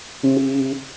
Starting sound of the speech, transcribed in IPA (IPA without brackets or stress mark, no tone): m